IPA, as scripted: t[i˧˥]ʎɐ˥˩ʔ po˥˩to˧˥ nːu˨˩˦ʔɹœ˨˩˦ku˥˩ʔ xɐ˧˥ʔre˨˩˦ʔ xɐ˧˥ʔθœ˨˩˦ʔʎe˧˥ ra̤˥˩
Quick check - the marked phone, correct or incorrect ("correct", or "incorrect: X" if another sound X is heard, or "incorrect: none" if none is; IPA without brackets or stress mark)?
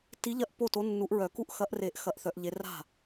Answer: correct